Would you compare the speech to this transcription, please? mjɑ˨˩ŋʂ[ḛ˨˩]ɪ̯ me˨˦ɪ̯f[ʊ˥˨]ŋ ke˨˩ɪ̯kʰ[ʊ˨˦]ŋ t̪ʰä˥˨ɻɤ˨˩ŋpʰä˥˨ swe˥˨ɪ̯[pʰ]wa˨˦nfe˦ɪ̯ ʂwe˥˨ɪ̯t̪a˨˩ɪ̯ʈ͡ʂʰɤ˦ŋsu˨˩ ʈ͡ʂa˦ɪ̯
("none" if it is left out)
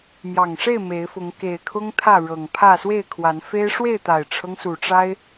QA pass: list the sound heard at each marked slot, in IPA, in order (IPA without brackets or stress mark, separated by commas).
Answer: e˥˨, ʊ˨˦, ʊ˦, kʰ